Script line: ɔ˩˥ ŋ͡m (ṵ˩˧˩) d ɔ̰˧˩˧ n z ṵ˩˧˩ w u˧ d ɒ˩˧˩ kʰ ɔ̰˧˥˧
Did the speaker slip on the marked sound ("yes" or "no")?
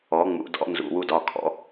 no